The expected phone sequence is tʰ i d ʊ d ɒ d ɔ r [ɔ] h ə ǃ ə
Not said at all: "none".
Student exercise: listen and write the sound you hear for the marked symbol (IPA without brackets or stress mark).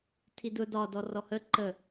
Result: ɔ